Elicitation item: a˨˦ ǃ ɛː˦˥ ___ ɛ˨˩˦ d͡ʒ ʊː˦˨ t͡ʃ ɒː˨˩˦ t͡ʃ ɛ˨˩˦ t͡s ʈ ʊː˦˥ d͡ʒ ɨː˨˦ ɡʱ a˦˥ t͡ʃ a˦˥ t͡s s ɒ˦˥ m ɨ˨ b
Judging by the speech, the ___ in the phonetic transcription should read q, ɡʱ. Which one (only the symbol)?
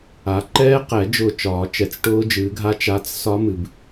q